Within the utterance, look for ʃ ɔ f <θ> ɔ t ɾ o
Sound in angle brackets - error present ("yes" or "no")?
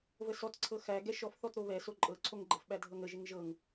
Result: no